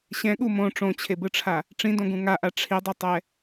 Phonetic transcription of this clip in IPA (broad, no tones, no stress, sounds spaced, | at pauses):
ɕ ɛ̃ ɠ u m õ ʈ͡ʂ õ t͡ɕʰ e b ɯ ʈ͡ʂʰ a | ʈ͡ʂ ĩ d õ ɡ ũ ŋ a ʔ a ʈ͡ʂʰ i dˤ i tˤ ɛ